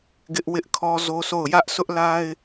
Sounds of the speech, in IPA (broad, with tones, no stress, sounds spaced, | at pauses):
ɡ ɪ˦ ʔ w ɪ˦ ʔ kʰ ɔ˦ z o˦ s o˦˨ ʊ̯ j ä˦ ʔ s ʊ˦ ʔ l a˦ ɪ̯